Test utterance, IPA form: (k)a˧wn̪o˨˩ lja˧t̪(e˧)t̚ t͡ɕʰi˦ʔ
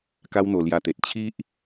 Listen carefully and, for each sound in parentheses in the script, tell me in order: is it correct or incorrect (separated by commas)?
correct, incorrect